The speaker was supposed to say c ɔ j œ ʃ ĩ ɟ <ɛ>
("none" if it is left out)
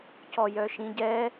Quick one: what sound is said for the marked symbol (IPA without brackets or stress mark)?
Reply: ɛ